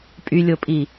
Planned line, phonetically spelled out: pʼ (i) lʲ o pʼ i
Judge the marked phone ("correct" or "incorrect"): incorrect